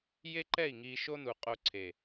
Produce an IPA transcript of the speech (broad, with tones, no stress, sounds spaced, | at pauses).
j e˦ ǃ ɛ˦˨ i̯ ŋ i˧ ʃ o˦ n u˨ qʼ o˧ ǀʰ e˨